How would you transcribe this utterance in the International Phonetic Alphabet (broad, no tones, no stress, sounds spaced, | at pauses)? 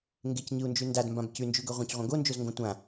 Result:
ŋ ɡ e c ɲ ɨ u̯ n d͡ʒ ʉ n d a d m b ã b c ʉ n d͡ʒ ʉ ɡ ɵ ʁʷ ɐ̃ c ʁʷ ɐ̃ ɡ o n d͡ʒ o z ŋ ɡ õ tʷ ã